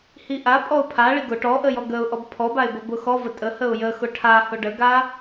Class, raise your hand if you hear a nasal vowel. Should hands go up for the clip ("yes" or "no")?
no